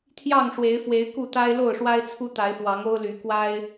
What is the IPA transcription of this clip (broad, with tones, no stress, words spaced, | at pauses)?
t̪ʰjɑ˥˨ŋʂwe˨˦ɪ̯fwe˨˦ɪ̯ ku˥˨t̪a˦ɪ̯ lo˥˨ʊ̯ʂwa˦ɪ̯t͡sʰu˦ t̪a˨˦ɪ̯fwɑ˨˦ŋo˦ʊ̯ly˨˦ kwa˦ɪ̯